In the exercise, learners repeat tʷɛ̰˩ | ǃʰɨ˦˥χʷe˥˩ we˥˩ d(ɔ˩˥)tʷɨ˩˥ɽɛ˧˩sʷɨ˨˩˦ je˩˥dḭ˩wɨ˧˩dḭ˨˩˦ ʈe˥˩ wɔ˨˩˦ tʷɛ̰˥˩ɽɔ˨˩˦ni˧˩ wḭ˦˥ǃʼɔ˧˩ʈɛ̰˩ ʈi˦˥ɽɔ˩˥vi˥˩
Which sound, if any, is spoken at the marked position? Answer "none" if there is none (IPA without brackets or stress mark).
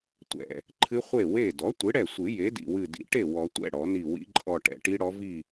ɔ˩˥